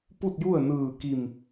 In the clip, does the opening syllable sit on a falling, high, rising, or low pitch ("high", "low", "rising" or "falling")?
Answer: falling